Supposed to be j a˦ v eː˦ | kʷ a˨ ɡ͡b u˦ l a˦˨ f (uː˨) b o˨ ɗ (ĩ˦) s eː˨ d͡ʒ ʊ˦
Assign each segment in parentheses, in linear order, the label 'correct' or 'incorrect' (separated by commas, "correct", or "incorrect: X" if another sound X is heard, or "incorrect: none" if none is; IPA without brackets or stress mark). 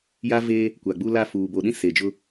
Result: correct, correct